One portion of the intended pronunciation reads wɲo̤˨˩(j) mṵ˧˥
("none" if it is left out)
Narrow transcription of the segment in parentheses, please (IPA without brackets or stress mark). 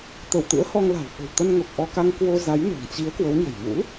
j